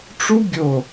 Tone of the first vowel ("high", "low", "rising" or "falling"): high